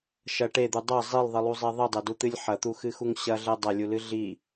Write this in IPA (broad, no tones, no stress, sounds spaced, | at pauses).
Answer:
ʃ ɐ ʈ e d̪ u dˤ ɐ zˤ i lˠ ðˤ ɨ lˠ u zˤ e ðˤ ɨ dˤ ɛ d u t̪ ɨ lʲ ħ ɐ t̪ u x ɨ x u ŋ ɕ ɐ ɮ ɛ dˤ ɐ lʲ u l ɨ ɮ i